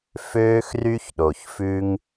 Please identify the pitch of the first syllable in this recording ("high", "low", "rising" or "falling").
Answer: high